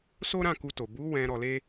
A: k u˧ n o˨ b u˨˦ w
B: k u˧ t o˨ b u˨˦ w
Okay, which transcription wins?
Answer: B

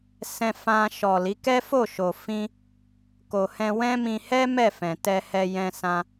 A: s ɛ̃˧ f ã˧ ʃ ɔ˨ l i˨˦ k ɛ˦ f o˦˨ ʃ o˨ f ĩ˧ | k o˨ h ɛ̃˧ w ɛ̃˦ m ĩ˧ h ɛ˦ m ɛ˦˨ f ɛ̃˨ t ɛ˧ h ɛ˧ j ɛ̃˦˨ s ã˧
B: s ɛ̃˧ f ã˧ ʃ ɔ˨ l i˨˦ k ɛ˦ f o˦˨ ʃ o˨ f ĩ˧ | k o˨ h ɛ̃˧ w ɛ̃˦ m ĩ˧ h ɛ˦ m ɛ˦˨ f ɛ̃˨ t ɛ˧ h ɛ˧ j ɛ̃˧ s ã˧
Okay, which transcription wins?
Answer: B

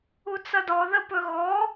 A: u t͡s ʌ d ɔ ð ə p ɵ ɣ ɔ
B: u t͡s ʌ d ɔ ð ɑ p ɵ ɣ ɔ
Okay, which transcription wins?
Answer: A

